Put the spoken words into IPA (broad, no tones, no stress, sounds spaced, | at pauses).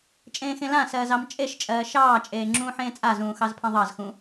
t͡ʃʼ ẽː x ẽ l ã s ɜː z ɑ m t͡ʃʼ e ʃ t͡ʃʼ ɜː ʃ ɑː t͡ʃʼ eː ŋ͡ǁ ũː ħ ẽː t͡sʼ a z ũː x ɑ z pʰ ẽ ðˤ ɑ z x ũ